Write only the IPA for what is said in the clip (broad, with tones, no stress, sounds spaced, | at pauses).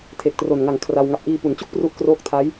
tʰ e˨˩ k̚ t r o˨˩ n ŋ a˨˩ ŋ kʰ r a˧ w ŋ a˨˩ p̚ ʔ iː˧ p u˩˦ n t͡ɕ u˥˩ k̚ p r u˦˥ ʔ k r oː˦˥ k̚ tʰ a˦˥ j